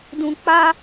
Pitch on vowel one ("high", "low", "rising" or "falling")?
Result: low